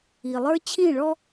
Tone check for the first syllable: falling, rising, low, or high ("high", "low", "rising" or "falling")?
low